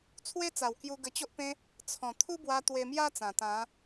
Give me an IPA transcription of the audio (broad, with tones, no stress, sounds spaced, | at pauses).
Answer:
t͡sʰ w e˦ t͡s a˨˩ w k j u˧ ɡ ə˧ t͡ɕ o˦ ʔ p ẽ˦ | t͡sʰ ɔ̃˨˩ t̪ʰ u˦ b w a˧ t̪ w e˧ m j a˦ t͡s ã˨˩ t̪ ã˨˦